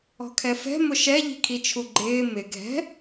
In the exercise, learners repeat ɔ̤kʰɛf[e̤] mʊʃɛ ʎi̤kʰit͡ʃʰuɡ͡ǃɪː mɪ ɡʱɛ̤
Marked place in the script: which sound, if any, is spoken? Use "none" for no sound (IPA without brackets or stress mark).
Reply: ɛ̤